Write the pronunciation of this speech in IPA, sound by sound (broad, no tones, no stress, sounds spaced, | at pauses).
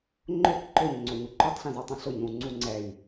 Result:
ŋ͡ǃ ʊ k ǃ ʊ ɲ ŋ͡ǀ o ɲ u ǃ u tˤ ɬ ĩ z o tˤ ũ ɬ ʊ ɲ ũ ŋ͡ǀ u ŋ͡ǀ ɛ j